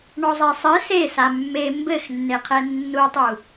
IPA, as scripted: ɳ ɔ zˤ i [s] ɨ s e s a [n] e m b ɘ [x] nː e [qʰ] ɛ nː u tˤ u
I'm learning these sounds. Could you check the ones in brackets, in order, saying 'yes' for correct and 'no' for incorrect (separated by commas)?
no, no, yes, yes